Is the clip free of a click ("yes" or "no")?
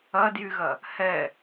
yes